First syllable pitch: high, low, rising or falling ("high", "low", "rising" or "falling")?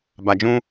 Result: low